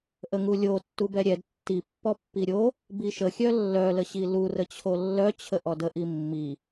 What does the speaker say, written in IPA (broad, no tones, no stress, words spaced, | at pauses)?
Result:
ʔəŋulʲo tːubɛɾʲɛd tːi pːɔpːiɾʲo | biʃə xʲœlːœ ləɕilu rət͡ɕʰolːœ t͡ɕʰəʔɔdə ʔimːi